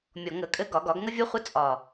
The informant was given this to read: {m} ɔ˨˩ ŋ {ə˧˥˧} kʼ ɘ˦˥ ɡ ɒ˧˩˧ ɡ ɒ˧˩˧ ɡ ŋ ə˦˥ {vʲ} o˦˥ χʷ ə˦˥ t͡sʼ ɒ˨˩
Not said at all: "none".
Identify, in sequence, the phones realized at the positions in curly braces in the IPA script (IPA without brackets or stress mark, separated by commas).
mʲ, ə˧˩˧, vʲ